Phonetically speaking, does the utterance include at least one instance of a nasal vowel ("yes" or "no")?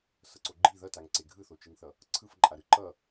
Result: no